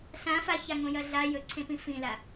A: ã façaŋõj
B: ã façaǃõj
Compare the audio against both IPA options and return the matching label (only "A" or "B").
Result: A